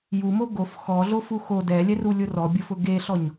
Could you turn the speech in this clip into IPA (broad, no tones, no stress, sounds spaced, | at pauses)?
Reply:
j u m o ɡ o f x ɔ ɮ o f u x o d ɛ lʲ ɛ r u lʲ ʊ r ɔ bʲ ʊ f ʊ ɡ e ɬ ɔ ɲ